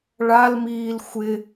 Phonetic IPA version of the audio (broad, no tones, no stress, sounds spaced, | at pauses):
ɭ a l m iː l xʷ ɪ